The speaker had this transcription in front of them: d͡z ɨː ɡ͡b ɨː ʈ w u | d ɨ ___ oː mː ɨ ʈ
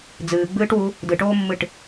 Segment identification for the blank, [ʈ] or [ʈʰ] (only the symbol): ʈ